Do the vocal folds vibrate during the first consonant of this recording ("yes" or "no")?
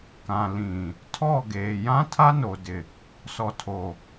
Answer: no